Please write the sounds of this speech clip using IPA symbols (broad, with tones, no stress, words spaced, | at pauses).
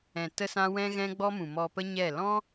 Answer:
ɛ̃˨tə˧sã˧ wɛ̃˦ɣɛ̃˦ɡ͡bɔ˦mũ˨ mɔ˨pə˧ ɲɛ˦˨ lɔ̃˦